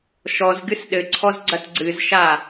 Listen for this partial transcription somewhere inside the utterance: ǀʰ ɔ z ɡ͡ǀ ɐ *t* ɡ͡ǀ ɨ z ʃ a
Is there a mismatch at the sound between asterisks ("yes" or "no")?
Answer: no